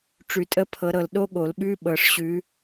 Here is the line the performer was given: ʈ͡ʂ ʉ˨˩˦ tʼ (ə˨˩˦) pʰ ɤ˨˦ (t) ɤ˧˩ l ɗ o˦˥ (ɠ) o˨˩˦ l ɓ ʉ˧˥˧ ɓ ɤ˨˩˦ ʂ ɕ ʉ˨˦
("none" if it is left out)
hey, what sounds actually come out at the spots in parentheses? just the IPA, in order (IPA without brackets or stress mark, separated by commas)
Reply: ə˧˥˧, ɾ, ɠ